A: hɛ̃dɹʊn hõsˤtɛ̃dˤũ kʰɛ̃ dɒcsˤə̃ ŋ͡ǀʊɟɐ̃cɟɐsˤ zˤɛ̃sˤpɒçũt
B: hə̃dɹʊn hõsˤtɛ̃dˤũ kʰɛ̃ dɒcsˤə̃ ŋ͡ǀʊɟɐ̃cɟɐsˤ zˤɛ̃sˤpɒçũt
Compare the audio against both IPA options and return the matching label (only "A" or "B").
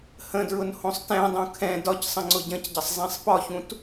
B